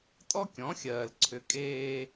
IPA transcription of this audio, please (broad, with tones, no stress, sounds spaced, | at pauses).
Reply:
tʼ ɔ˦ kʲ ɔ̃˨˦ xʲ ɜː˨ l ǀʰ ʏ˨˦ kʼ eː˦